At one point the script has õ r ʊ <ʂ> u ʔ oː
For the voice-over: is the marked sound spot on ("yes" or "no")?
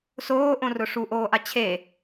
yes